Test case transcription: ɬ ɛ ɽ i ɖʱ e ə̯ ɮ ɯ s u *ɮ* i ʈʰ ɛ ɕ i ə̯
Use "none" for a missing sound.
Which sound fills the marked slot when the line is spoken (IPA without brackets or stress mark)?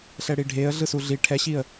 ɮ